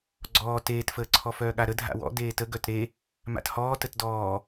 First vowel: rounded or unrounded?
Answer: rounded